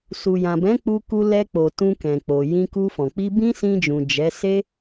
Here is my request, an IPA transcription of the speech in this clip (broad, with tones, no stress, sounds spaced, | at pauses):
s u˨ j ã˨ b ɛ̃˨˦ k͡p u˧ k u˧ l ɛ˧ k͡p o˨ t ũ˧ k ɛ̃˨ k͡p o˨ j ĩ˧ k u˧ f ɔ̃˨ k͡p i˧ b ĩ˦ s ĩ˧ d͡ʒ ũ˨ d͡ʒ ɛ˨˦ s e˦